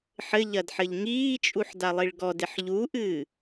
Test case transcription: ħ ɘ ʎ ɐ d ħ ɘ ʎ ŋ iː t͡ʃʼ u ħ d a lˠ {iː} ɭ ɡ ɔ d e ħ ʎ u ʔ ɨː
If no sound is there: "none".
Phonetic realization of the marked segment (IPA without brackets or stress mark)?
i